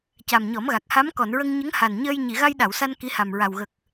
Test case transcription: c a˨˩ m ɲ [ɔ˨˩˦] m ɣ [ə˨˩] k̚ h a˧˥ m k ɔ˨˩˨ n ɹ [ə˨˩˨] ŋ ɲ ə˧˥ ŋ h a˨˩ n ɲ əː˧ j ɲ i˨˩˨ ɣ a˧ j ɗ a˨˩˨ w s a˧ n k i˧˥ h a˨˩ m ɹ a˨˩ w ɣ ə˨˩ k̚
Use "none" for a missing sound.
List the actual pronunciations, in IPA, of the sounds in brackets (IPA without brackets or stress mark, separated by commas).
ɔ˨˩˦, a˨˩, ə˧